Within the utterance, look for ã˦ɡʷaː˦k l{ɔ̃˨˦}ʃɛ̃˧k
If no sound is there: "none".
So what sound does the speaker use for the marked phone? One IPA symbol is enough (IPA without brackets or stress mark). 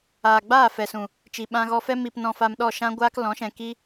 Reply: ɔ̃˨˦